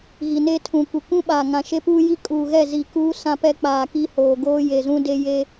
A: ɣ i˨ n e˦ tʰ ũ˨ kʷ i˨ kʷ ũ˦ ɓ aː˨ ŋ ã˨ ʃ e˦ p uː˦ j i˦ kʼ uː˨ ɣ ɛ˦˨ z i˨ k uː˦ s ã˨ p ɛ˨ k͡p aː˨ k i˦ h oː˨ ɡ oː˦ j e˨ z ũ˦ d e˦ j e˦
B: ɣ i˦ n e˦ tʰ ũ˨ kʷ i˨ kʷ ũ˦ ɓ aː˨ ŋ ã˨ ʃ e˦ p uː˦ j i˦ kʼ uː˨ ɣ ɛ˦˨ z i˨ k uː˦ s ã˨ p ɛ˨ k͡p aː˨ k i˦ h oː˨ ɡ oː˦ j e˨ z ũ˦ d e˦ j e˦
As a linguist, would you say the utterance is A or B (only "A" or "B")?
A